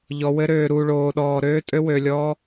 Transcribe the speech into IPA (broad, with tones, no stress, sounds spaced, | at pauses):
ʎ ɔ˧ w ɘ˦ ɾ øː˧ ɾ u˧ ɭ oː˧ ɗ ɔː˧ ɾ øː˦ tʼ ø˦ w ø˧ lʲ ɔː˦